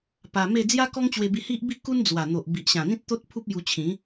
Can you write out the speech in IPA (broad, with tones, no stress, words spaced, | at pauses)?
pa˧me˥˧ d͡zja˦kɔ˦ŋt͡ɕwe˧bi˧ hi˦ʔbi˥˧ku˦n d͡zwa˨˩ n̪o˨ʔbi˨ʔɕã˨˩n̪ĩ˦t̚ t̪o˦t̚pʰu˦p̚ju˧t͡ɕʰĩ˨˦